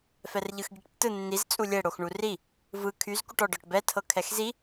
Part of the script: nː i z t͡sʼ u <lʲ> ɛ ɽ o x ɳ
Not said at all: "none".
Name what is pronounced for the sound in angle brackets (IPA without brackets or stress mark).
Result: lʲ